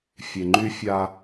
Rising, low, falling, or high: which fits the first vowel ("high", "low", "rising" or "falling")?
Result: low